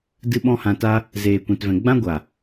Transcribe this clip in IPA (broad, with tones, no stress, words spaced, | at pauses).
dɨ˦ɓɔ̃˦hã˧ta˦ | zeː˧kʷɛ̃˧tvɛ̃˧ ɡ͡bã˦ɡʷa˨